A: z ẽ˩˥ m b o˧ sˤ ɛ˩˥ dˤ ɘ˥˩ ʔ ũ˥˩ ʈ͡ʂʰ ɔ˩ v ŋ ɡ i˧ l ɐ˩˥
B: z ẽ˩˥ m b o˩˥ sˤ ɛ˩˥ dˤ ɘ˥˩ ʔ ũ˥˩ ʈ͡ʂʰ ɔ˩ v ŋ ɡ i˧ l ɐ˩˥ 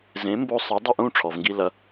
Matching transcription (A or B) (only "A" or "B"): A